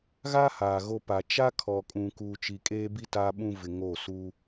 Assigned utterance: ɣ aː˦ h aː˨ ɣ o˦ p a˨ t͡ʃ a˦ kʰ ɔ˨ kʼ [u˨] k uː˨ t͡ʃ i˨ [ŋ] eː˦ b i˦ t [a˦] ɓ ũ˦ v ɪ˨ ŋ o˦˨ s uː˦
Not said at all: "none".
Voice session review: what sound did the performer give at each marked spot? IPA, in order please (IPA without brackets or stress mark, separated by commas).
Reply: ũ˨, kʼ, a˦